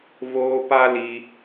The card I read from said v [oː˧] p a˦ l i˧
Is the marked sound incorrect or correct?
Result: correct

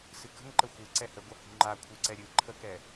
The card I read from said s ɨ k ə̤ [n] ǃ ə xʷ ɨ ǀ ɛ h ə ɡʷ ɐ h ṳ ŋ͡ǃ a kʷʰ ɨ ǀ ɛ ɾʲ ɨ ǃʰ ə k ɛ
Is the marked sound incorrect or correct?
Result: incorrect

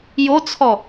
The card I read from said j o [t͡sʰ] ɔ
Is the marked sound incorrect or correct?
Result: correct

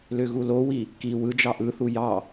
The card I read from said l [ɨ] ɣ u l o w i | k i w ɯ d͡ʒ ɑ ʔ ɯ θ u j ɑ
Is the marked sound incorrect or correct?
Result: incorrect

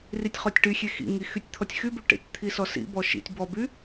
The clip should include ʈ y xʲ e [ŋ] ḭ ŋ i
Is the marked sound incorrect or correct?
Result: incorrect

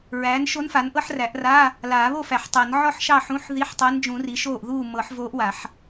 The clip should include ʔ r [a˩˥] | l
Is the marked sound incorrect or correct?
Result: incorrect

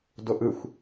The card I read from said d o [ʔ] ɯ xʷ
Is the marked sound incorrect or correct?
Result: correct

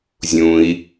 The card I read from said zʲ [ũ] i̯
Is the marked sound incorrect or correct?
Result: correct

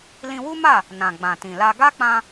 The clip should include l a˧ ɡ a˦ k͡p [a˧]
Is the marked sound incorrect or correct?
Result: incorrect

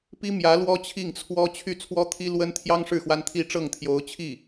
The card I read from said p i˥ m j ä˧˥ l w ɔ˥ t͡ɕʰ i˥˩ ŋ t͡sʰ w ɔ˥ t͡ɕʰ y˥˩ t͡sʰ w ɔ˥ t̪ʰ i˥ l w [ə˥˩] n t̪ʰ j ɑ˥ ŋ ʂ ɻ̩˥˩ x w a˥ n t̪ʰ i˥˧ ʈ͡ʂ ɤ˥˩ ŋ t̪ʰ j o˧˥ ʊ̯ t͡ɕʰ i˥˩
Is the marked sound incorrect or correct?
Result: incorrect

